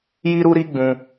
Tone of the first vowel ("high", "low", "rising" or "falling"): high